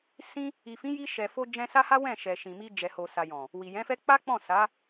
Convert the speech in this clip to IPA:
s ĩ˧ | i˨ f ĩ˨˦ j i˧ ʃ ɛ˨ f o˧ d͡ʒ ɛ̃˧ s a˦ h a˦ w ɛ̃˦˨ ʃ ɛ˨ ʃ ĩ˨ m i˧ d͡ʒ ɛ˨ h o˨ s a˨ j ɔ̃˨ | w i˨ j ɛ̃˨˦ f ɛ˦ k͡p a˦ k͡p ɔ̃˦˨ s a˨˦

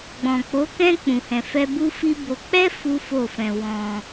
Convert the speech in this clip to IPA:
ɡ͡b ɔ̃˨ k͡p o˨˦ k ɛ̃˦ k͡p ũ˧ h ɛ̃˧ f ɛ˦ b u˦ f i˦ b o˧ k͡p ɛ˦ f u˦ f o˦˨ f ɛ̃˧ w ɔ̃˧

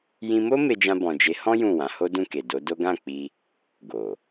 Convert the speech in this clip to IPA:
j ĩ˧ m o˦ m e˧ d͡ʒ ã˧ b ɔ̃˨ d͡ʒ e˨˦ h ɔ̃˦ j ũ˦˨ w ã˨˦ h o˦ d ũ˦˨ k e˨ d o˨˦ d o˦ ɡ ã˦˨ k͡p i˧ | ɡ o˨

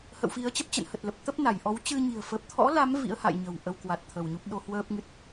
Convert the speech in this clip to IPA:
h ə̰˧˨ w f i˨˦ ə̯ t͡ɕ ə˦˥ p̚ t͡ɕ ə̰˧˨ n h ə˨˩ t̚ l ə˨˩ p̚ t̪ ə˦˥ p̚ n a˧˩ j ʔ ɔ˨˦ w t͡ɕ ɨ˧ ɲ i̤˨˩ ə̯ f ə˨˩ p̚ t̪ʰ ɔ̰˧˥ l a˨˦ m v ḭ˧˥ ə̯ h a̰˧˨ j ɲ ə̤˨˩ w ʔ ə˧ w k w a˨˩ t̚ t̪ʰ ə˧˩ w ɲ u˦˥ p̚ ɗ o˧ h w əː˦˥ p̚ ŋ ɨ˦˥ t̚

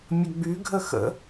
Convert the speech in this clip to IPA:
mʲ ə ɡ͡b y ɡʱ ə x ə̰

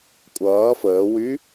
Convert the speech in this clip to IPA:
kʷʼ ʌː f əː w y

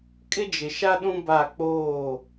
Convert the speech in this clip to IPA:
kʼ ɪ˦ d͡ʒ ɪ˨ ʃ a˦ ɗ ũ˦ b a˦˨ k͡p oː˦˨

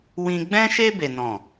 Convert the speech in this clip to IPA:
w ĩ˦ ɡ͡b ɛ̃˦ ʃ e˦ b e˦ n ɔ̃˦˨

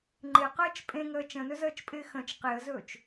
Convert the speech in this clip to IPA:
ŋ͡ǃ ɪ q əː t͡ʃ pʼ ẽ ŋ əː t͡ʃ ə̃ n ɵ z əː t͡ʃ pʼ ɪː x ə̃ t͡ʃ q e ə̯ z ɵː t͡ʃ

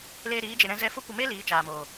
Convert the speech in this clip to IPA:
l eː˧ ɾ iː˨˦ d͡ʒ e˨ ɾ ɛ̃˧ z ɛ˧ f o˦ kʷ ə˧ m e˦ l iː˨˦ t͡ʃ aː˨ m oː˨

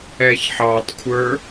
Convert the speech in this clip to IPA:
ɛ ç ħ ɑ tˤ kʷʰ ə˞

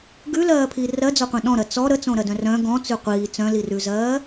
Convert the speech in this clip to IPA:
ɡ ʉ l ɜː pʰ i r ɜ d͡z ɔ qʷ ɛ̃ ɗ ɔ̃ ɾ ɜ t͡s ɔ ɾ ə t͡s õ ɾ ɜ d œ̃ r œ̃ ɡ ɔ̃ t͡s ʉ qʷ iː t͡s œ̃ l i r ʉ z ɜː

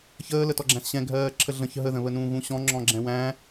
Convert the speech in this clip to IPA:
ç əː l ə t ɔ ɡ͡ǁ æ̃ s ɕ ɛ̃ ɡʱ ɜː ǁʰ ə ɮ ə̃ ç ɦ ə ð ə̃ β ə n ũː ɣ ũ ɕ ɔ̃ ŋ͡ǁ ɔ̃ ɡ͡ǁ ɛ̃ w æ̃

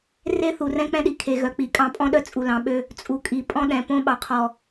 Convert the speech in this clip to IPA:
r e˦ θ u˨ r ɛ̃˦ k͡p ɛ̃˦ ɗ i˨ kʰ e˨ ɣ œ˨ k͡p i˨˦ kʼ ɑ̃˦ pʼ ɔ̃˦ ɗ œ˦ t͡sʼ u˨ l ɑ̃˨ ɓ ø˦ | t͡sʼ u˨ kʼ i˨ pʼ ɔ̃˦ ɗ ɛ̃˨ p õ˦ ɓ ɑ˨ qʰ ɔ˨

